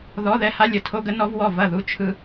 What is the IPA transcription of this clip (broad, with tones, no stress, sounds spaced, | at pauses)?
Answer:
ð ɔ˧˥˧ ð ɛ˥˨ h a˥ lʲ ə˨˩ tʰ o˥ ɡ ə˥ n ɔ˥ v w ɔ˥˨ v ɐ˥˨ ð u˥˨ t͡ʃʰ ɯ˥